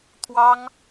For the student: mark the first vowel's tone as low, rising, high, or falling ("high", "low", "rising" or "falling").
high